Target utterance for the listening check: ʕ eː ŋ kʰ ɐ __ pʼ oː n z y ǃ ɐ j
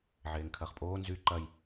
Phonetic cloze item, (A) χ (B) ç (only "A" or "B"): A